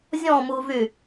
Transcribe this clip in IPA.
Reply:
zʲ ɔ̃ m u v y

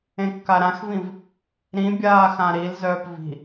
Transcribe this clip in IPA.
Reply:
ẽ kː a ɾ ã x v ĩ v | ɾ ĩ bʲ aː x ã ɾ i l z œː p v i̤

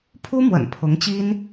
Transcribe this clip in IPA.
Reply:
pʰ u˥ m w ə̰˨˩ n pʰ ʊ˧˥ ŋ t͡ɕ i˥ n

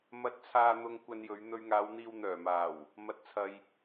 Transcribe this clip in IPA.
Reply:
m ɐ˨ t̚ t͡sʰ aː˨ n̪ ʊ˨ ŋ kʷ ɐ˧ n j ɵ˨˧ ɥ n̪ ɵ˧ ɥ ŋ aː˨˧ w n̪ iː˧ w n̪ œː˨˩ m aː˨˩ w | m ɐ˨˥ t̚ t͡sʰ ɐ˨ j

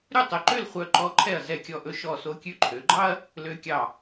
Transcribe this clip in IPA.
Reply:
ɾ ʉ˥˧ tˤ ø˧ ǃ ø˥˧ l χʷ œ˧ ǃ ɔ˧ ǃʰ ɛ˧˩ ɐ̯ z ɛ˧˩ kʲ ɔ˧˩ ʔ ɵ˧ ʃ ɔ˧˩ s o˧ kʲ ʉ˧ ǃʰ ø˩˧ ɡ͡ǃ ɑ˥ ɐ̯ | l ø˧ kʲ ɑ˧˩

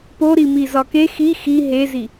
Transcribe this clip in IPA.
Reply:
p o ɾ i m i z ɒ k e x i x i ɦ e z i

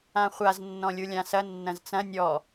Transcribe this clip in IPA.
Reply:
ã χʷ a z nː ɔ̃ lʲ u lʲ ã s ɐ nː ɐ̃ z t͡s ɐ̃ nʲ ɔ

